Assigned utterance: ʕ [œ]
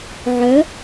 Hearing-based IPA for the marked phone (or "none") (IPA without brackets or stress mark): œ